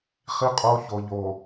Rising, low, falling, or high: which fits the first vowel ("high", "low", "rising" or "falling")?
high